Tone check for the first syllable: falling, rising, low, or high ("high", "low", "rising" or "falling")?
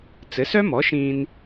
rising